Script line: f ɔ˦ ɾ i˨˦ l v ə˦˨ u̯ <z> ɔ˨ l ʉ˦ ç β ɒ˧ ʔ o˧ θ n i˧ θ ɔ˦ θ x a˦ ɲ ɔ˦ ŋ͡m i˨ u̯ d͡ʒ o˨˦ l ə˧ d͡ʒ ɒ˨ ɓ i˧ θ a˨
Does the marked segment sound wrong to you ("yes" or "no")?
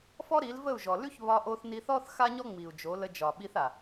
yes